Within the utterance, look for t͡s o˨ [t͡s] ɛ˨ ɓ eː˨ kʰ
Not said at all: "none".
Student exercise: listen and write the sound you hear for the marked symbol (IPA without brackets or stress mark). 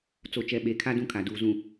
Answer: t͡ʃ